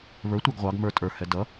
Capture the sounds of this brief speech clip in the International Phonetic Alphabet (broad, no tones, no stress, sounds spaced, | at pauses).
β ə˞ tʷ ə˞ ɡ ʁʷ ɑ ɡ m ə˞ tʼ ə˞ h ɛ d ʌ